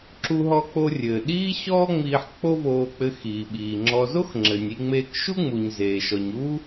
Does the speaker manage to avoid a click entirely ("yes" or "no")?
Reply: no